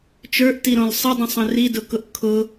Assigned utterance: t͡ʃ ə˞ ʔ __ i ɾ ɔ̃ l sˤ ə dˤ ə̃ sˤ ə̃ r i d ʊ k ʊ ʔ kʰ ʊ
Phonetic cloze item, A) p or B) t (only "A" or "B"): B